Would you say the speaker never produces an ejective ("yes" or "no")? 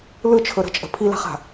no